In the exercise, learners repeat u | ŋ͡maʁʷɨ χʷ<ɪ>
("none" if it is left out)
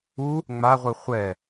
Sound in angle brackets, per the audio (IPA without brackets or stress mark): ɛ